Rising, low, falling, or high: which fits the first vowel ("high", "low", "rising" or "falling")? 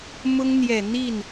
high